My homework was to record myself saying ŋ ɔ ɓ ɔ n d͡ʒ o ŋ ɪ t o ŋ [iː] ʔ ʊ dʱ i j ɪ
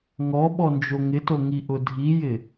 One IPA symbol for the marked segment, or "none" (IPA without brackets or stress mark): i